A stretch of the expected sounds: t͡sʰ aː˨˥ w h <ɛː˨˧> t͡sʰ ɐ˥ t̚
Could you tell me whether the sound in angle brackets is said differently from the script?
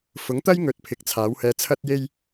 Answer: yes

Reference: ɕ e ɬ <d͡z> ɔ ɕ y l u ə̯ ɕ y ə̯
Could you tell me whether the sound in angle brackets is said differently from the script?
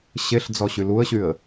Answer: no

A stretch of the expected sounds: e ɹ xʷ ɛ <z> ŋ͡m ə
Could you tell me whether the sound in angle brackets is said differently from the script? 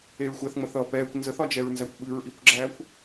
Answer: yes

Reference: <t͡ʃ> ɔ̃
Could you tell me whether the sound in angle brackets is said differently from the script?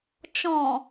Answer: no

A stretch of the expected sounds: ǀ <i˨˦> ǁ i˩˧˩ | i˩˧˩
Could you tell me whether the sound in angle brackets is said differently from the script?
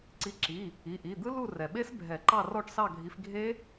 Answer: no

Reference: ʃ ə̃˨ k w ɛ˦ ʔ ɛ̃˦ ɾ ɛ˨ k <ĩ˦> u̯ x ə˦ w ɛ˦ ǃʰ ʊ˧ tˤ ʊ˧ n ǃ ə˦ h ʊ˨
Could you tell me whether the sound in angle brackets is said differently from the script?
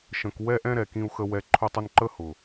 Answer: no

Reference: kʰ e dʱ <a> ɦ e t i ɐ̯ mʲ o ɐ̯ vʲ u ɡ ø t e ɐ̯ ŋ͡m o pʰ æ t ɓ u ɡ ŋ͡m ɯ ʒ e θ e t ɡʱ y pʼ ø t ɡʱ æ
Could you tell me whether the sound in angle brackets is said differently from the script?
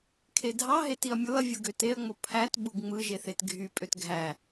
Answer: yes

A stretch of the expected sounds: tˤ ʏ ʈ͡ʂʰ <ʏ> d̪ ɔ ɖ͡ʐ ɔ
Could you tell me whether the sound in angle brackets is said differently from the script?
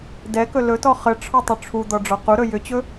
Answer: yes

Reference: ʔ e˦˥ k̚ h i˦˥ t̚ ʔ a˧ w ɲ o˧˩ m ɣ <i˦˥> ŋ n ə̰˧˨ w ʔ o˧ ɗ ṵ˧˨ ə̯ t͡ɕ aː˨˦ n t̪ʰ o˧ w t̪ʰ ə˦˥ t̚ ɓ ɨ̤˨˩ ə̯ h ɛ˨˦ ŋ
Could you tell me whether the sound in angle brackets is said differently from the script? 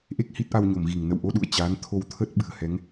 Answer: yes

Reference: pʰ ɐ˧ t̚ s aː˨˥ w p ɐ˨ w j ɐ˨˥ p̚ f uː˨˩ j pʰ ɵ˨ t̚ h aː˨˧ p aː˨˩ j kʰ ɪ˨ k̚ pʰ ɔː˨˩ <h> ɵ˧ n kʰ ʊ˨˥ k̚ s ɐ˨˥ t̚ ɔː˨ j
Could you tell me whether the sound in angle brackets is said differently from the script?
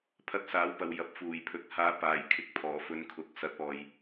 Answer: yes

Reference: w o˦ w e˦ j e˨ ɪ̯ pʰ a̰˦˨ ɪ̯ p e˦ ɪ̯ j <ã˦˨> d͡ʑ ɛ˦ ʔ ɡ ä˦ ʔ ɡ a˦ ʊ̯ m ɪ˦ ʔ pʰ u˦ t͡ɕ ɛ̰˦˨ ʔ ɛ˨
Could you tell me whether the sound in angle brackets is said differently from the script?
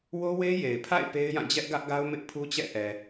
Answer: no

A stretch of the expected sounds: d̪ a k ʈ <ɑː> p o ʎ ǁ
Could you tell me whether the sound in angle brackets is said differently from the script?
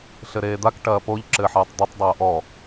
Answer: yes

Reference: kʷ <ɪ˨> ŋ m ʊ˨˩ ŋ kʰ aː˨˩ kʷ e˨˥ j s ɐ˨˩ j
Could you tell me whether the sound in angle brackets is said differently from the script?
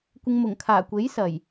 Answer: no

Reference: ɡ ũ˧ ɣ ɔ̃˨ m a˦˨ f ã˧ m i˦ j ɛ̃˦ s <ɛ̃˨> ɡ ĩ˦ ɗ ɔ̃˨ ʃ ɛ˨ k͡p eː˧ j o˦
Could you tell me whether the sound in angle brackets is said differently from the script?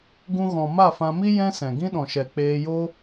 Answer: no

